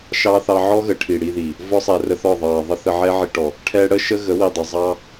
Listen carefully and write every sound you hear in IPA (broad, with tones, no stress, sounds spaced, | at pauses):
ʃ ɑ˦ θ ɑ˧ ʕ ɔ˦ ɣ ə˨ ʈʰ i˨ ɽ i˧ ð i˨ | v ɔ˦ sˤ ɛ˨ r ə˧ θ ɔ˦˨ ðˤ ɑ˨ ðˤ ə˦ θ ə˧ ʕ ɛ˦ ʕ i˧ ʈ ɔ˨ | ʈʰ ɛ˧ ɽ ə˦ ʃ ə˦ ɣ ə˨˦ w i˨ dˤ ə˨ zˤ ɑ˦